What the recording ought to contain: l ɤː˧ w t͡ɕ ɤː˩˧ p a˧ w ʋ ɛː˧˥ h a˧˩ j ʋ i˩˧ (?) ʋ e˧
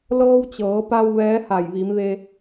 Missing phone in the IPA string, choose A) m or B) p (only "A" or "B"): A